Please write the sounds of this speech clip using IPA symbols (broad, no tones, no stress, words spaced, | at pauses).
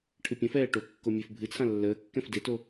ʈʰɨpʲə̃fɛː ʈokːo mʲøfbʱɨt͡sʰã lːəːkːɛ̃f deto